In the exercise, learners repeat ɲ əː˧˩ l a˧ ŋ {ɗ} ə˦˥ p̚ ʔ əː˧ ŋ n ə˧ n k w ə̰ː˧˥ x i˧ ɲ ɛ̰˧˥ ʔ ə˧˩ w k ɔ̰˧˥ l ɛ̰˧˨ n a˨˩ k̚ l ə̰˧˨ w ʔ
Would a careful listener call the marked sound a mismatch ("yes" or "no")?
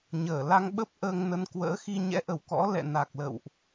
yes